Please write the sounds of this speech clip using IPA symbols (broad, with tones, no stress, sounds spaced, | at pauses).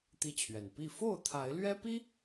t̪ i˦ t͡ɕʰ ɥ ɛ˨˩ n p i˥˨ f o˥˨ ʊ̯ t̪ʰ a˨˦ ɪ̯ l ɥ ɛ˦ p i˦